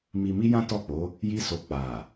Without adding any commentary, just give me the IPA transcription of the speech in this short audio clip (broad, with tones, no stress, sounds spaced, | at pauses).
m i˧ m i˦ j ã˦ t ɔ˦˨ k͡p o˨˦ | j i˦ s o˧ k͡p a˨